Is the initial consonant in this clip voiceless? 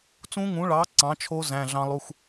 yes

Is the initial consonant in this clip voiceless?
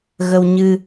no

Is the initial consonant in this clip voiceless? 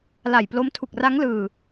no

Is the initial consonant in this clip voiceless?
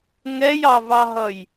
no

